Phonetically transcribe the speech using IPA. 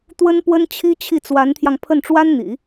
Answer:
t̪ w ə˥ n p w ə˥ n t͡ɕʰ i˥ t͡ɕʰ i˥˩ t͡s w a˧˥ n t̪ʰ j ɑ˧ ŋ pʰ ə˥˩ n ʈ͡ʂ w a˥ n n̪ ḭ˨˩˦

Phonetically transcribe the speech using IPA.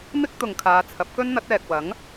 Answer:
m ɪ˥ k̚ t̪ ʊ˨ ŋ kʰ aː˨˧ t͡sʰ ɐ˨˥ p̚ k ɵ˥ n n̪ ɐ˨˥ t̚ ɛː˨ k̚ w ɐ˨˥ ŋ

